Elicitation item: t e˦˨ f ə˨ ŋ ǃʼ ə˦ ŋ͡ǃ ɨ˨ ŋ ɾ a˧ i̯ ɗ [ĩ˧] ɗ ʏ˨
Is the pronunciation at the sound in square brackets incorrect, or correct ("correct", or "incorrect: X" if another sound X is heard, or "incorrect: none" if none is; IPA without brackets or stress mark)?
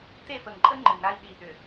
incorrect: i˧